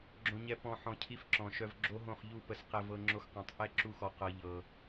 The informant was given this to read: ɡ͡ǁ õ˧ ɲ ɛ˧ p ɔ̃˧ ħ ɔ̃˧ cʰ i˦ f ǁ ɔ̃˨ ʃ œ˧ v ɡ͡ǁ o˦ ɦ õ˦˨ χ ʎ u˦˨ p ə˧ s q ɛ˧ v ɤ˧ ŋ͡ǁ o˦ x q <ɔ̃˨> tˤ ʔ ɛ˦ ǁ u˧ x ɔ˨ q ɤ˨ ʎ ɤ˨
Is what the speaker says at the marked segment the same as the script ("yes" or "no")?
yes